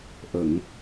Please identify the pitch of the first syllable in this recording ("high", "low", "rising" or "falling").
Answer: low